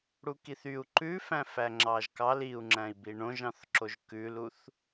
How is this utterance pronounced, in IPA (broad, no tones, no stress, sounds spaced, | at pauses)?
ɽ u k i θ y u̯ ǃ ʉ f æ̃ f æ ŋ͡ǁ ɑ ʒ k ɑ l i u̯ ŋ͡ǁ æ̃ i̯ b i ɳ õ ʒ ɑ̃ θ ǁ o ʒ k ʉ l u θ